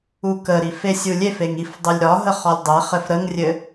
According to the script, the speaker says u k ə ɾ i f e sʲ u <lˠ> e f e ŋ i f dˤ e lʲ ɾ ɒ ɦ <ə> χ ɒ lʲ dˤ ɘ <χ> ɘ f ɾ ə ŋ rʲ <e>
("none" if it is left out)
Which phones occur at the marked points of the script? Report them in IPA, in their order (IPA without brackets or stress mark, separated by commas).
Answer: lʲ, ə, χ, ɘ